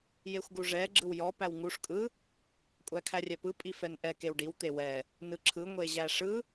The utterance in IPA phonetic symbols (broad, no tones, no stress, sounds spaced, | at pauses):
j e xʷ ɡ u ʐ ɛ ɡ͡ǁ ɯ w j ɔ p æ w ŋ u ʂ kʼ ɯ | kʷʼ æ kʰ æ rʲ ɛ p ɯ pʼ i f ɛ n ʔ ɛ k e w ɖ i w t̪ e w ɛ | n ɯ ǁʰ ɯ ŋʷ e ʑ æ ʂ ɯ